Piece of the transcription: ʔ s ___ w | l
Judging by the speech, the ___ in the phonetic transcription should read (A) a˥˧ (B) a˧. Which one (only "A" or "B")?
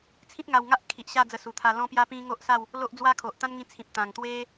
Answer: A